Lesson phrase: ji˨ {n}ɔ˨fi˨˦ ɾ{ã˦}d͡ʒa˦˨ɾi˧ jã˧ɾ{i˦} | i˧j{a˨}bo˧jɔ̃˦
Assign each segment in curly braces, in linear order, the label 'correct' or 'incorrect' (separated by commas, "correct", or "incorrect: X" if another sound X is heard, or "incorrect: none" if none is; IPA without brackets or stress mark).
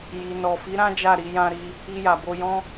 correct, correct, incorrect: i˧, correct